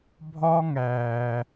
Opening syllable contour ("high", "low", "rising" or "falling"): high